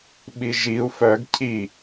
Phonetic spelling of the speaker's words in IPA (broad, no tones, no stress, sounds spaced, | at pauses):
ɓ i ʒ i u̯ f œ ɡ cʰ i